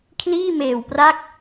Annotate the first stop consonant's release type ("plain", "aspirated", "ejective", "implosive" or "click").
aspirated